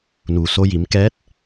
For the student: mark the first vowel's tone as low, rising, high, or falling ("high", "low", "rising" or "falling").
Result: low